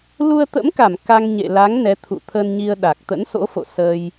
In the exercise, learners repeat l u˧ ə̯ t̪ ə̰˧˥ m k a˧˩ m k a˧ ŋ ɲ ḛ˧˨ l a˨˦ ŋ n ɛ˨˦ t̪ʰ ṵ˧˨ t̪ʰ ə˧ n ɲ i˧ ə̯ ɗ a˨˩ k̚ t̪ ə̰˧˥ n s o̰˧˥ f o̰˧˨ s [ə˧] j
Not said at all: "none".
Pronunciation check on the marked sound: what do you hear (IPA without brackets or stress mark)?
əː˧